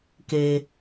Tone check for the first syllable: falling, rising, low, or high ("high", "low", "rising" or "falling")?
low